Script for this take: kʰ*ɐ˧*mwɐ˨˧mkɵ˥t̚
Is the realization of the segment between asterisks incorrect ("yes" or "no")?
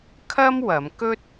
yes